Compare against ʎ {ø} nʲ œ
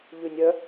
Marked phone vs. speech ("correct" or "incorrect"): incorrect